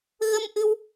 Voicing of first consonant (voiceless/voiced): voiced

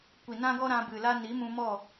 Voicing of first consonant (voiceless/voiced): voiceless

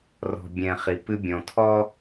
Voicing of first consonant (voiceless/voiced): voiced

